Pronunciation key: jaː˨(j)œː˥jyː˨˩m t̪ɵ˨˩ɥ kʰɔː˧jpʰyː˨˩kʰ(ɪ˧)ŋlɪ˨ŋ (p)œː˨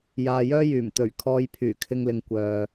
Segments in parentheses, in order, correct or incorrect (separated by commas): correct, correct, incorrect